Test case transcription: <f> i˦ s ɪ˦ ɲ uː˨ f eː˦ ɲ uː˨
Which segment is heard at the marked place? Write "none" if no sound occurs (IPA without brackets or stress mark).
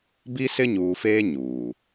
b